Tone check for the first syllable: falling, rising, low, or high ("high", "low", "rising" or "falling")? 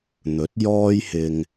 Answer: rising